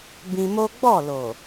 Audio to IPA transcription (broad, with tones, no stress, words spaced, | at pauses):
bĩ˧mo˦ ɡ͡bɔ˦˨lo˨